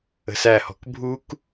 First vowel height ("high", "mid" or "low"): mid